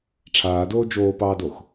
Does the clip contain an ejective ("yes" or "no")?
no